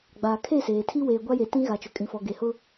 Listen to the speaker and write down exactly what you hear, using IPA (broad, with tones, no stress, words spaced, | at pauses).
ɡ͡baː˨kʰe˦˨seː˨tʰi˦ weː˨ɡʷa˦je˨ tĩ˦ɣa˨t͡ʃʊ˨ kʼĩ˨fɔ˨ɡe˨hʊ˦